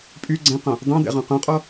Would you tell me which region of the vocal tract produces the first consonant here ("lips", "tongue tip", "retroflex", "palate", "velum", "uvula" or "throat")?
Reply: lips